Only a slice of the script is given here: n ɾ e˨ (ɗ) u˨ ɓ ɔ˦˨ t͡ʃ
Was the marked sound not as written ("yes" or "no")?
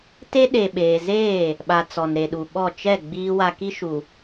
no